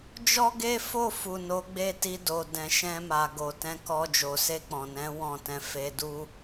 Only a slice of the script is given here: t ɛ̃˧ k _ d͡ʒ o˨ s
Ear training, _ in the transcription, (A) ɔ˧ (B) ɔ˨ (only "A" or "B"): A